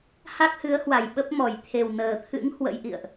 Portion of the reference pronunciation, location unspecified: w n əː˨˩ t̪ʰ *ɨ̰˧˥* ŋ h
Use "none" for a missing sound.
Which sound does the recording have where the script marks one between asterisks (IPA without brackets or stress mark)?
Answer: ɨ̰˧˥